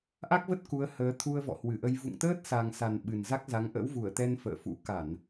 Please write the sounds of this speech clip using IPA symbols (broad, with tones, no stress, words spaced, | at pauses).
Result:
ʔa˦˥k̚və˦˥t̚ ku˨˦ə̯həː˨˦ t̪ʰu˧ə̯vɔ̰˧˨hwɨ˧˩ʔə˧j vṵ˧˨ŋt̪əː˦˥t̚sa˨˩ŋsa˨˩n ɓɨ˨˩nza˦˥k̚za˨˦ŋ ʔə̰˧˥wvu˧˩ə̯t̪ɛ˧n fə̰ː˧˨fṵ˧˥ ka˧˩˨n